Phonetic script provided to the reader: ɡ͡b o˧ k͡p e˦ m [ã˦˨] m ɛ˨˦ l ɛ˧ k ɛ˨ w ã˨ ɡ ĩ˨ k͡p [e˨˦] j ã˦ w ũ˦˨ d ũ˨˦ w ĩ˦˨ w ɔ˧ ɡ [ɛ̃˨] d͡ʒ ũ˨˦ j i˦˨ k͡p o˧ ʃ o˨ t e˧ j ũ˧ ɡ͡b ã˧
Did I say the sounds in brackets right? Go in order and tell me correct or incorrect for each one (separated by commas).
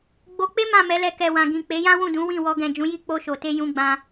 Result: correct, correct, correct